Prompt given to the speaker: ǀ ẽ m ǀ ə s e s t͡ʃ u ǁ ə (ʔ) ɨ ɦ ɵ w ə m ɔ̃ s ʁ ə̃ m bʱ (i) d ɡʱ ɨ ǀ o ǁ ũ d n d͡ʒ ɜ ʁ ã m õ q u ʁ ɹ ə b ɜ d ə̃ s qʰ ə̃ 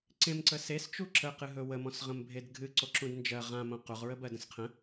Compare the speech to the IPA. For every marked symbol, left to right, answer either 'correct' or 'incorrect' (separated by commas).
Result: incorrect, incorrect